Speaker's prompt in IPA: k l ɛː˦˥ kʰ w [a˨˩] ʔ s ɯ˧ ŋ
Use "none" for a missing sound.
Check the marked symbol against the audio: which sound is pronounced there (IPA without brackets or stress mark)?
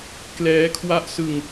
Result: a˦˥